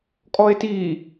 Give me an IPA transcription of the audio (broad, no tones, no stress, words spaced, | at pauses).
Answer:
kʼɔe̯ti